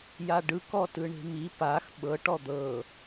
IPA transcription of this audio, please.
j a ɖ ɯ k ɔ t ɯ ɳ e̤ m i p a x ɓ ɤ ʈ ɔ d̪ ɤ

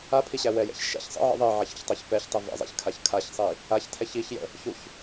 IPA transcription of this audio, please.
a pʰ i ɕ æ w ɛ j ɛ̰ ç ʃ ɛ̰ ç sˤ ə̰ ʕ ə̰ ðˤ i ʕ a ç ə̰ ç tˤ a ç p ɛ ç tˤ i v ɛ̰ zˤ ɛ̰ ç kʰ a ç kʰ a ç sˤ i | a ç tʰ ɛ ç i ç j ə̰ | ç u ç

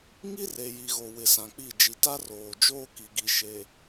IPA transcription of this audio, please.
ŋ i˦ r e˨ j i˨ ɣ o˨ w ɪ˨ s ã˨ k͡p i˦˨ d͡ʒ i˨ t a˦ r oː˨ d͡ʒ oː˦ k i˨ ɡ i˨ ʃ e˨

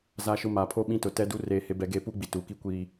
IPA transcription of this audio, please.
z a˦ ʃ ʊ˦ m aː˨ pʰ oː˦ ɓ ĩ˦ t ʊ˨ t ɛ˦ d u˦ r eː˦ h e˦ b ɛ˦ ɡ eː˦ p uː˦ ɡ͡b i˨ t uː˨ k i˦ kʷ iː˦

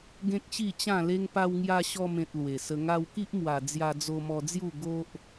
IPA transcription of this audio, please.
ɡ ẽ˦ k̚ ɕ i˥˧ t͡ɕ ã˥˧ l e˦ ŋ p a˧ w ŋ j a˧ ɕ ɔ˧ m ẽ˨ t̚ l w e˨˩ s ə˧ ŋ a˧ w k i˦ ʔ m w a˨˩ d͡z j a˧ d͡z o˧ m ɔ˧ d͡z j u˥˧ ɡ o˦ ʔ

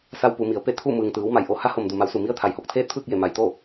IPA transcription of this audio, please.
s a˧ w p u˩˧ m i˩˧ ə̯ p e˥˨ t̪ʰ u˥˨ m ɯː˩ ŋ t̪ ɯː˩˧ w m a˩ j ʔ o˧˩ h a˧˥ h o˩ m d u˩ m a˩˧ w s u˩ m i˧˥ ə̯ t̪ʰ a˩ j h o˧˩ k̚ t̪ʰ eː˥˨ t̚ pʰ ɯː˥˨ k̚ j e˧˩ m a˩ j t̪ o˥˨

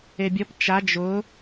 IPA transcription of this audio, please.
e bʲ ɔ p t͡ʃ a d͡ʒ ʊ

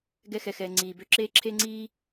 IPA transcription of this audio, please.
ɡ ɛ˧ x ɛ˩ x ɛː˩ ŋ͡ǀ iː˩ b ø˧ ǁ eː˥ ǁʰ eː˥ ŋ͡ǀ iː˥

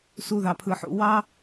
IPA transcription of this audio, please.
s u˦ ð ɑ˧ pʰ ɯ˧ ħ ṵ˦ w ɑ˦

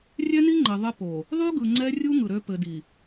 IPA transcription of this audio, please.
rʲ ɛ˦ n i˦ ŋ͡ǃ ɘ˨ ðˤ ɘ˦ p o˨ | ðˤ y˦ ɡ ɯ˨ ŋ͡ǀ ɛ˦ rʲ u˦ ŋ ɯ˨ ɾ ø˦ p ɘ˨ d i˨

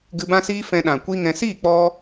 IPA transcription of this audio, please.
ɡ ɨ˧ b ã˦ s iː˦ f ɛ̃˧ ɗ ã˨ kʷ i˦ ŋ ɛ̃˧ s i˦˨ k͡p ɔ˧

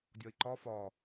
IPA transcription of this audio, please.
dʲ ɒ i̯ ǃ ɒ f ɒ

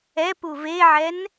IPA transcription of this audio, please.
ɛ p u v e ʕ ɛ n

